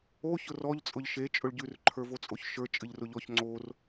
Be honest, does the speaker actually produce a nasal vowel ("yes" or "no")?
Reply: no